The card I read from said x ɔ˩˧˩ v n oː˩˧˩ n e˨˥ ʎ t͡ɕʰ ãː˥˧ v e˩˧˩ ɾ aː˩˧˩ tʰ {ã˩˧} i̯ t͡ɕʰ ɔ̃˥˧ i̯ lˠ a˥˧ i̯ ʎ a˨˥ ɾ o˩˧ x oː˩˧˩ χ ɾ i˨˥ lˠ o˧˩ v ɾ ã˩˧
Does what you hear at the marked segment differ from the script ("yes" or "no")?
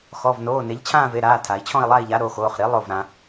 yes